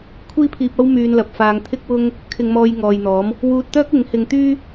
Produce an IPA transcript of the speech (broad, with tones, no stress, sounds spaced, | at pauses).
kʷʰ iː˥ pʰ iː˧ p̚ ɐ˥ w m yː˧ n l ɐ˨ p̚ f aː˧ ŋ t̪ʰ ɪ˥ k̚ w ʊ˥ ŋ | kʰ ɪ˧ ŋ m ɔː˧ j ŋ ɔː˨ j n̪ ɔː˨˥ m | w uː˧ t̚ t̪ œː˥ k̚ ɪ˨˥ ŋ h ɪ˧ ŋ t̪ yː˥